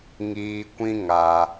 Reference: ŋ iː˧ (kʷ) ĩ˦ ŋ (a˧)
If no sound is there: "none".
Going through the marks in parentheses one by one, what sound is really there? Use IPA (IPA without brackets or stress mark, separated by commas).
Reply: kʷ, a˧